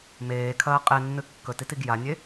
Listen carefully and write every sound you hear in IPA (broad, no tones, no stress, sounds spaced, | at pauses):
m eː kʰ ɐː qʼ e nː ɨ kː ɵ t i t i ɡ j a nʲ e